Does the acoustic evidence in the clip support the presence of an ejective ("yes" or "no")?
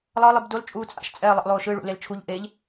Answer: yes